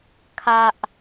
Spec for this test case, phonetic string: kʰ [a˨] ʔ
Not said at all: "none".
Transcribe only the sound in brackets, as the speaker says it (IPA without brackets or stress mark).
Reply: a˨